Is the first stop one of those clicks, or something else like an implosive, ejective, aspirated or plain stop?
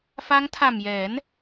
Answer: aspirated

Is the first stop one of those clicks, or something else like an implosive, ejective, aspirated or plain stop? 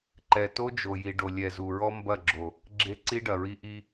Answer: click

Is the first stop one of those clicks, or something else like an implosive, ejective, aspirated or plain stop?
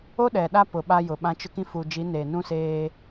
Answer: implosive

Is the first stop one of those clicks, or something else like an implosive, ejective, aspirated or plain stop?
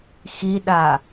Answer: implosive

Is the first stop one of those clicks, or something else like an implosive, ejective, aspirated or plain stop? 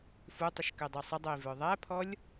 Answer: plain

